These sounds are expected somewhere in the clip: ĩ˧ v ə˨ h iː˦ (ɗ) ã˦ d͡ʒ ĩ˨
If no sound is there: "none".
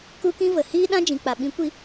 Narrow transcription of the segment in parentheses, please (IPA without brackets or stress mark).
ɗ